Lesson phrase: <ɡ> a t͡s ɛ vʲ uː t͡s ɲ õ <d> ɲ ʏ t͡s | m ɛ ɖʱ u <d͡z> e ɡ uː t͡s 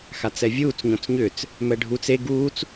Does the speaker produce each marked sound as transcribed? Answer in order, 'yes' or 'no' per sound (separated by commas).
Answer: no, no, no